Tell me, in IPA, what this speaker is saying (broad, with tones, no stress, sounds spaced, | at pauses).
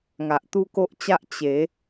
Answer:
ŋ a˨ ʔ t̪ u˦ k o˦ ʔ t͡ɕ a˦ ʔ t͡ɕ e˨˦